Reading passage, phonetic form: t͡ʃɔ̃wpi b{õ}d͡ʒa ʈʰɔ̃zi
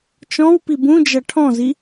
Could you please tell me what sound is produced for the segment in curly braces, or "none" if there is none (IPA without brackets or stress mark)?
ũ